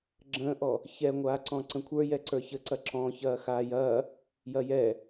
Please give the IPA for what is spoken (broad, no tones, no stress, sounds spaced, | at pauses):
ɡ͡ǁ ə̃ː ʔ ɔ | ç ɛ ŋʷ aː ǀ ɔ̃ ǀ ə̃ kʷʰ ə˞ j ɛ ǀ ə˞ ç ə ǀ ɐ ǁ ɔ̃ ç ɐː x aː j ɐː | j ɐ j ɛ